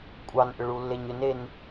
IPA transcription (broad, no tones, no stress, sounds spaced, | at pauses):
kʷʼ ɑ n ʔ ʏ ɭ u lː e ɲ ʏ n e n